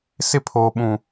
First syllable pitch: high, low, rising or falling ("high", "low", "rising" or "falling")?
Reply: high